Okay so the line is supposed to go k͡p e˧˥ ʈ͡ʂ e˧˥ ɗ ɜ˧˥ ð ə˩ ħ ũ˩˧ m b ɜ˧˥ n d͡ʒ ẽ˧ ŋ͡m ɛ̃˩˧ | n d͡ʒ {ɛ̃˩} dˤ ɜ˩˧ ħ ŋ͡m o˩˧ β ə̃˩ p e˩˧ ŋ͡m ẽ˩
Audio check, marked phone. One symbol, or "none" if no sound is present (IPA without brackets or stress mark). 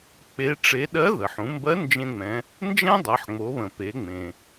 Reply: ɛ̃˥